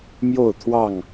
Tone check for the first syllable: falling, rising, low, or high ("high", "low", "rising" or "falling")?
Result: falling